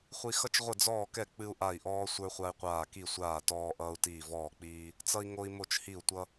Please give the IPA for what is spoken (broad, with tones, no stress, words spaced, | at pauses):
χʷi˦ xʌ˦t͡ʃ ʁʷə˦˨d͡zɔː˦˨kɛ˦˨ k͡pɨ˦u̯ʔa˦˨i̯ʔɔː˦ sʷə˞˦χʷa˦i̯qʷaː˦˨ ki˦˨sʷaː˦˨ tɔː˦ʔʌː˦u̯tiː˦˨ vɔː˦˨k͡piː˦ | t͡sʌ˦i̯ŋo˦i̯ mo˦˨t͡ʃhi˦˨u̯tʷʌ˦